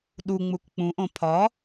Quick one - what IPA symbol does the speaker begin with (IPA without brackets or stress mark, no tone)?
ɗ